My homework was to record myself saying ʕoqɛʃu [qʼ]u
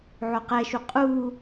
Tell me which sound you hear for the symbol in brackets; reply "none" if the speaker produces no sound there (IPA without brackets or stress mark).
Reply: qʼ